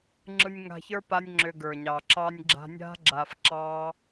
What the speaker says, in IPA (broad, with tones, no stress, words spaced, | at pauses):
ŋ͡ǁɯ˧nʲŋa̤˧çə˞˦ pa˦nʲŋ͡ǁʏ˧ɡə˞˨ɲɑ˨ ǁɑ˧nʲɡ͡ǁa̤˧nʲa̤˦ ɡ͡ǁa˧fǁɑ˦